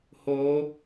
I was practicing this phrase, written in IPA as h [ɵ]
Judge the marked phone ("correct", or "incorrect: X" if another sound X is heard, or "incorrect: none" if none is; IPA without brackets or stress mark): incorrect: o